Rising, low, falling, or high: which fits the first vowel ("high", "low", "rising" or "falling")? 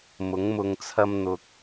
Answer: rising